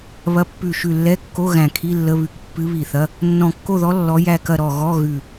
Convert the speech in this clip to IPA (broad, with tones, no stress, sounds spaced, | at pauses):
β ɐ˧˥ pː ʉ˧˩ ʃ ʉ˧˩ lː ɛ˧˥˧ kː o˧˥˧ ɣ æ̃˧˩ kʰ i˧˥˧ lː ə˧˥˧ β ʉ˧˥ k pː ɨ˧˥ β i˧˩ θ ɐ˧˥˧ | nː ɔ̃˧˩ kː o˥˨ ð ɔ˧˥ lː ɔ˧˥ j æ˥˨ k ɐ˥˨ ɾ ɔ˧˩ ɣ ɔ˧˥˧ ɣ ʉ˧˩